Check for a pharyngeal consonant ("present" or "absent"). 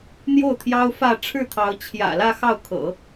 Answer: absent